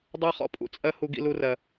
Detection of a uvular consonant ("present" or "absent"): present